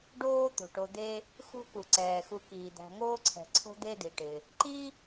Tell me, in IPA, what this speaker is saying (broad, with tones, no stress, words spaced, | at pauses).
ɖoː˥ t̪o̤˩ʈo˨ d̪e˦ | xṳ˦ku˩ǀɛː˩ xu˨kiː˩d̪æ̤˨ ŋoː˥ǀʰɛ̤˨ǀʰo̤˥ d̪e˥di˩ʈɪ˩ | ǃi˥